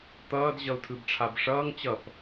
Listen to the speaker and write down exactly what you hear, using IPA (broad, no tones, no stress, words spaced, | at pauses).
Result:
t̪ʌːd ʑʌu̯tʰɯbʈ͡ʂʰabʂʌːŋ t͡ɕʌp